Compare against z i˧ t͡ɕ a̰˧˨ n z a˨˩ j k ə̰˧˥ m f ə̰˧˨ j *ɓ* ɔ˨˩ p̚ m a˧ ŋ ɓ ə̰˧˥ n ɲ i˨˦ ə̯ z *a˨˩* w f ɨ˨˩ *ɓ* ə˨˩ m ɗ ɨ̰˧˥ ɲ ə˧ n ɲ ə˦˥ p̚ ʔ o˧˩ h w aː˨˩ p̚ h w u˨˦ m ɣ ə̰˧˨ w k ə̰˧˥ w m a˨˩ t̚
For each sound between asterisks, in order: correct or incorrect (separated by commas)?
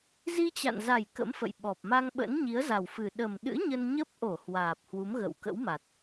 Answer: correct, correct, incorrect